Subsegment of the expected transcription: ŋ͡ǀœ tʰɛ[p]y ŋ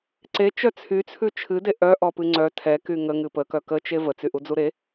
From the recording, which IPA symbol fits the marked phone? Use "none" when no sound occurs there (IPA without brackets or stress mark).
k